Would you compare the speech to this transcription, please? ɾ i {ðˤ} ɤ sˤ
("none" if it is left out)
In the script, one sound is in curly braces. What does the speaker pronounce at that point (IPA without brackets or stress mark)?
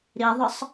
ðˤ